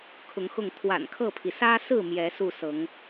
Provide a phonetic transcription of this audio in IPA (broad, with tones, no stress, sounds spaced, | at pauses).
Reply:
kʰ ʊ˨˦ ŋ x ʊ˥˨ ŋ t̪ʰ w a̰˨˩ n kʰ ɤ˥˨ pʰ i˩ s ä˦ s ɹ̩˥˨ m j ɛ˨˦ s u˥˨ s ɤ˨˦ ŋ